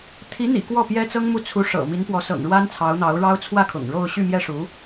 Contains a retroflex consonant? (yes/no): yes